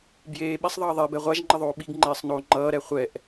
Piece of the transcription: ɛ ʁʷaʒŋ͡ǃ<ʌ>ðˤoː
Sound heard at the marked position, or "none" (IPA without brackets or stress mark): ʌ